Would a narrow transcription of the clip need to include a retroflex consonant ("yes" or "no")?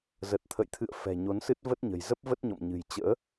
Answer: no